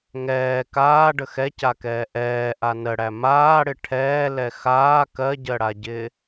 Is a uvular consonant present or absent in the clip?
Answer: absent